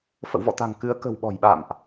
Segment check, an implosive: present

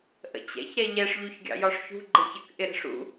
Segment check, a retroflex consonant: present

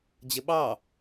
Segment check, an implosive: present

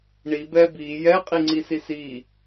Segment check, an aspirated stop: absent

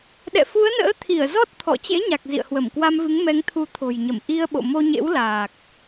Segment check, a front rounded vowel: absent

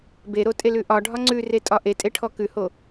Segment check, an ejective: present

